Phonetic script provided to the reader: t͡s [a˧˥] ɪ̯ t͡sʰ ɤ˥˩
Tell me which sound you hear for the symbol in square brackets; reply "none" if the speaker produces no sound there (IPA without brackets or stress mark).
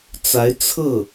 a˧˥